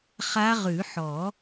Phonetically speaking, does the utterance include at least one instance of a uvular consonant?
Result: yes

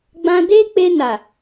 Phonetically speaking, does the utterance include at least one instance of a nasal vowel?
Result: yes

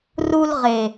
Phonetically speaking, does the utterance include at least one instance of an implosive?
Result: no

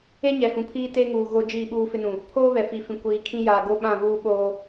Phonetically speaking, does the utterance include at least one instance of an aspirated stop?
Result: yes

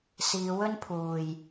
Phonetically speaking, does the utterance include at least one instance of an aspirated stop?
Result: yes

